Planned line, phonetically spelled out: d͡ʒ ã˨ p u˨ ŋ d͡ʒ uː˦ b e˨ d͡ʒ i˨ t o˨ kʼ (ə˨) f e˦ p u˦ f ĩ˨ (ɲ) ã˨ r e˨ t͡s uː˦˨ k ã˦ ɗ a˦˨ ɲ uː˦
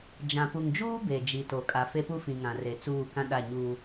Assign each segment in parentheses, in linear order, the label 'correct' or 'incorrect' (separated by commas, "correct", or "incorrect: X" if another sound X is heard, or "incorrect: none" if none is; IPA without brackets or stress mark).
incorrect: a˨, incorrect: ŋ